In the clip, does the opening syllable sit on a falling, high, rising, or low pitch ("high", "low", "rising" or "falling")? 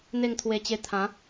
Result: falling